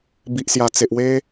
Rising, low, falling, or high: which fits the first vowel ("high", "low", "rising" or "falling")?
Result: low